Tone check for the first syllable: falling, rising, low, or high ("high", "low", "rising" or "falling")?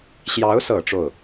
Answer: rising